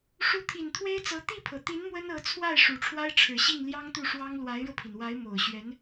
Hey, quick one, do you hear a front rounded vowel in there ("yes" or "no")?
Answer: no